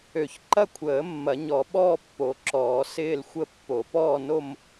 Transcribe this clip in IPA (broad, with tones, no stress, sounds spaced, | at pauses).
ø˨˩˦ ç ǃ ɐ˥˧ kʷʰ əː˨˩˦ mː ɐ˨˩˦ ɲ ɔ˨˩˦ ɓ ɔː˥˧ pː o˨˩˦ ǁ ɔː˨˩˦ s ɪː˥˧ l xʷ ə˥˧ pː o˨˩˦ p ɔː˥˧ n o˥˧ m